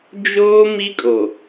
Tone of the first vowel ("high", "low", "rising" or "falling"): high